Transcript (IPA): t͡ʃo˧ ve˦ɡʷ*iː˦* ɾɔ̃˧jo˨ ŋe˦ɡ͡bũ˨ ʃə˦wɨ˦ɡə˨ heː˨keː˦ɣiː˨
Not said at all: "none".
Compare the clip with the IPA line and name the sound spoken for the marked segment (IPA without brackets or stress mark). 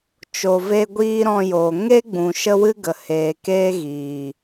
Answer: iː˦